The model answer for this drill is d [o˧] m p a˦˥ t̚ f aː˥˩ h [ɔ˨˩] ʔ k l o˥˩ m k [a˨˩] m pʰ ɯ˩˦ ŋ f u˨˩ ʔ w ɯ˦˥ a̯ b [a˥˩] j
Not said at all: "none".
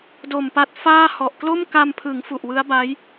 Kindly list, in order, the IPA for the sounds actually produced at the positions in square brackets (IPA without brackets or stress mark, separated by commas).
o˨˩, ɔ˨˩, a˧, a˦˥